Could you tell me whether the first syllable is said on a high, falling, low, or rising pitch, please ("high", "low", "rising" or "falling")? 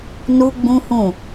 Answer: high